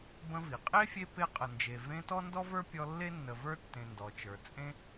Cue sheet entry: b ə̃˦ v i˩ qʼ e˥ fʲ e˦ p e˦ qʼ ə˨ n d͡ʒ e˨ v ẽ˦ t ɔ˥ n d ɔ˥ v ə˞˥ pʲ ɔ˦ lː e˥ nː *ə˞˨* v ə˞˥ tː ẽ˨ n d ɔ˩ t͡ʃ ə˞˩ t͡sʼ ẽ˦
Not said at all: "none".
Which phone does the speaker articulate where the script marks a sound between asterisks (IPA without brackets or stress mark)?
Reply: ə˨